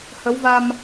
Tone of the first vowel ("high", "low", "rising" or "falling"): rising